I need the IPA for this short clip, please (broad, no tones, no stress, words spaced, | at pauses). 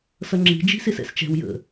sʌŋ͡ǁi̤ d͡ʒi̤sɪsɛ̰st͡ʃɛ̤w jə̰